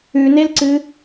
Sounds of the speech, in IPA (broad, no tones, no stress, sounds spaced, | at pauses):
ʉ n e l ǀ ɨ